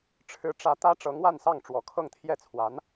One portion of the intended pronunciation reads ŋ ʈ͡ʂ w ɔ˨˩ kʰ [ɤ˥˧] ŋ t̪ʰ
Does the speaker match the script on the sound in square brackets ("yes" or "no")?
yes